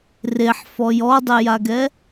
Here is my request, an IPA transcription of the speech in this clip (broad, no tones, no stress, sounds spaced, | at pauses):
r e ħ f ɔ j ɔ dˤ e j a ɡ ɛ